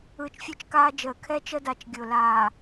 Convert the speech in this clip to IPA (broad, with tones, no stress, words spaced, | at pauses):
ɯː˨t͡ʃfʲʊː˦t͡ʃ kaː˦d͡ʒəː˨ kʰɛː˦t͡ʃə˦da˨t͡ʃ ɡʲʊː˨ laː˨